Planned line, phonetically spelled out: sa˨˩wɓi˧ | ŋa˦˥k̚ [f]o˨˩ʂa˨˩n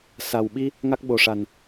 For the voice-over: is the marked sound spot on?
no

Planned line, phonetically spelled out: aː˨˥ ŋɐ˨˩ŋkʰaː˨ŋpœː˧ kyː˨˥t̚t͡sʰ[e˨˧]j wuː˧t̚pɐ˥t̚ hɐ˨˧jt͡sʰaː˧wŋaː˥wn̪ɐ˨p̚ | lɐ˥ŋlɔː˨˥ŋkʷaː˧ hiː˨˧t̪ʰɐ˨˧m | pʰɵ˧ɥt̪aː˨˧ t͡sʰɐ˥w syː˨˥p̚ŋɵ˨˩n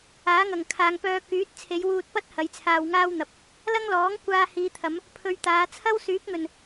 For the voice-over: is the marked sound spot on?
yes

